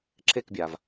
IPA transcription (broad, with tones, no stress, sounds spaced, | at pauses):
ǁʰ e˥˨ k bʲ a˩ v